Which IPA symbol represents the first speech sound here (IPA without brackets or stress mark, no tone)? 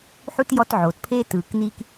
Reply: ħ